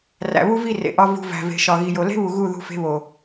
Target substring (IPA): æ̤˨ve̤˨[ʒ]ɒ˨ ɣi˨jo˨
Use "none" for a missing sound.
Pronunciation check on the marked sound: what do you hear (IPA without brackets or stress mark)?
ʃ